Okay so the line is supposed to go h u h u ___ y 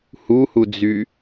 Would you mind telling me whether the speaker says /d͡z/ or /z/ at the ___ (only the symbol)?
d͡z